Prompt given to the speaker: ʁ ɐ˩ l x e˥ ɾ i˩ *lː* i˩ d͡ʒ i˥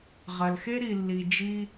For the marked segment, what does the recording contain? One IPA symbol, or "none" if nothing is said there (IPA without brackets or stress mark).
lː